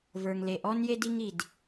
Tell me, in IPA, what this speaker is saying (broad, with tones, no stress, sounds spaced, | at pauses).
v ə˞˩ ŋ l e˩ ʔ ɔ˥ n j e˥ d i˥ ŋ i˩ d